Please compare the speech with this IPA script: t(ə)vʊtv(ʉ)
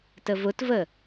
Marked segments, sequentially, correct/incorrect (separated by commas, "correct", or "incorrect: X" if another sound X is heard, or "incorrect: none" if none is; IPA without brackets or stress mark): correct, incorrect: ə